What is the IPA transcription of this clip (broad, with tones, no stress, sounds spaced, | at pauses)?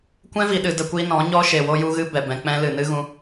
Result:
kʷ ɛ̃˦ v i˨ ɗ ɨ˨ d ə˧ kʷ i˦ n ɔ̃˨˦ ɲ ɔ˦ ʃ e˨ w o˦ j u˦ ɣ ɨ˦ b ɛ˨ b ɛ̃˧ k͡p ɛ̃˦ l ɨ˨ n ɨ˦ ɣ ũ˧